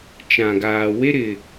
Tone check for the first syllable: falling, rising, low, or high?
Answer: low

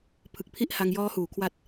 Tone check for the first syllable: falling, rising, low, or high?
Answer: low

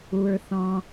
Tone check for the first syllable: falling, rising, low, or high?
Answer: low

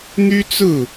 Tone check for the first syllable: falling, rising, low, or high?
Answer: high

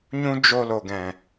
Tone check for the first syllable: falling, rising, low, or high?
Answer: high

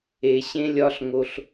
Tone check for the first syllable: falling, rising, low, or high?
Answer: low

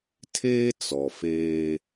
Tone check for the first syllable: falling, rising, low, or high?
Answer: high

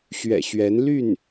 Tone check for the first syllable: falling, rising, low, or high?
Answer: low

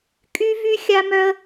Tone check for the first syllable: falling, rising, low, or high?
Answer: high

